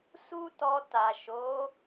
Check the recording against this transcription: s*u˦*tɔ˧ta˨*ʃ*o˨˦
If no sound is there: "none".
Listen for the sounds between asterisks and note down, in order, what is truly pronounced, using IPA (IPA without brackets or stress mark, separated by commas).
u˦, ʃ